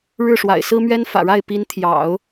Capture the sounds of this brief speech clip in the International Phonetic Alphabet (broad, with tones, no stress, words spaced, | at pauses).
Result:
ɻɻ̩˥˩ʂwa̰˨˩ɪ̯sɹ̩˥mɥɛ˥n fä̰˨˩ɻa˥˩ɪ̯ pi˧˥n t̪ʰjɑ̰˨˩˦ʊ̯